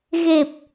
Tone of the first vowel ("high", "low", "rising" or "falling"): low